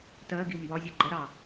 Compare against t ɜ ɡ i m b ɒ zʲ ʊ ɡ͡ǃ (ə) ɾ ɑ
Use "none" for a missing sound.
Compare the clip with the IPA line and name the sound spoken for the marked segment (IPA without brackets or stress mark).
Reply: ə